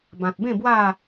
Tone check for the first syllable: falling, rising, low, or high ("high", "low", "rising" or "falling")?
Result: low